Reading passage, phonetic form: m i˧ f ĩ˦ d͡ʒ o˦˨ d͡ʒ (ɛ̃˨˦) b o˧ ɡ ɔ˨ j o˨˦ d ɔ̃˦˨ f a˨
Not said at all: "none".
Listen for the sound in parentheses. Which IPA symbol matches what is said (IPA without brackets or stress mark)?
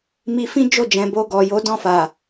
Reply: ɛ̃˨